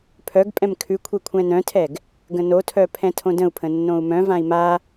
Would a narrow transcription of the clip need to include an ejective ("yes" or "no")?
yes